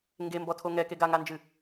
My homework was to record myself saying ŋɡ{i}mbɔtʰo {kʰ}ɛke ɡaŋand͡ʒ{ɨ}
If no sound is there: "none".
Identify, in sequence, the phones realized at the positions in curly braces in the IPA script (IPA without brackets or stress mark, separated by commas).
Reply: e, ŋ, ɨ